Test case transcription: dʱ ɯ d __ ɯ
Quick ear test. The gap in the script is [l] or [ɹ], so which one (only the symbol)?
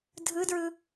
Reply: ɹ